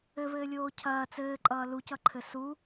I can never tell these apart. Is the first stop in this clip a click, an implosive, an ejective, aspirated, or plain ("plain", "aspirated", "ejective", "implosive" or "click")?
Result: aspirated